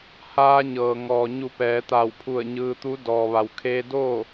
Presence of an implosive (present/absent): absent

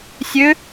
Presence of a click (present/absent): absent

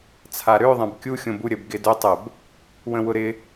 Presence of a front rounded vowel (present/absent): present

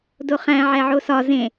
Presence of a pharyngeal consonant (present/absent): present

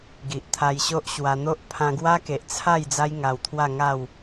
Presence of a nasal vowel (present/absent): present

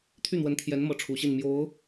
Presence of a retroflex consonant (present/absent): present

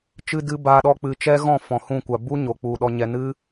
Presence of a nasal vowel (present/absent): present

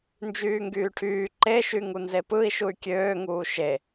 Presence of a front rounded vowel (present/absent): present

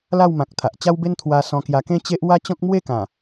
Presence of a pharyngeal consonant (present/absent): absent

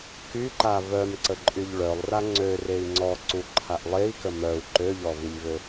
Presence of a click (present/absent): present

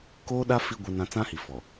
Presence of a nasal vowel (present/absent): present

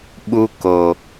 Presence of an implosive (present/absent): present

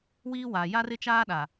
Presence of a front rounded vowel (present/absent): absent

